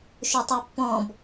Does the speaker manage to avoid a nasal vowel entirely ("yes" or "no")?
no